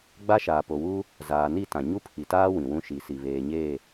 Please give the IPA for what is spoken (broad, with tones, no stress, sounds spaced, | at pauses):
ɡ͡b a˦ ʃ aː˨ p o˨ w uː˦ | z aː˨ n i˦˨ t ã˨ ɲ u˦ pʰ i˨ t aː˦ w ĩ˨ w ũ˦ ʃ i˨ s i˨ β eː˨ ɲ eː˦˨